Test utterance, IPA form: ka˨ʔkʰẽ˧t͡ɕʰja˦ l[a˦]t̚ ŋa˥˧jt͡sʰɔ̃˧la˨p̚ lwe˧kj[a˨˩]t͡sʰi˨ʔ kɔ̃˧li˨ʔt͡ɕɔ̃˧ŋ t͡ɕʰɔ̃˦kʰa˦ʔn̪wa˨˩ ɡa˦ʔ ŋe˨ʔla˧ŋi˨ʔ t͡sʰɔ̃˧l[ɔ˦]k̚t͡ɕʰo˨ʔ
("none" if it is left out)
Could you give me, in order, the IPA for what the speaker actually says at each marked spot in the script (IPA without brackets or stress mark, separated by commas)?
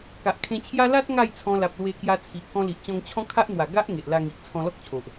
a˦, a˧, ɔ˦